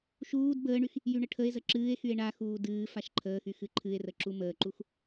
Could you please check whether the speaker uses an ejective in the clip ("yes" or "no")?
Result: no